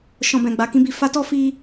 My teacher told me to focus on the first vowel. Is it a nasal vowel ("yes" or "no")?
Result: yes